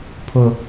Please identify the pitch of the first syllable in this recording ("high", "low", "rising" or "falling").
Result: high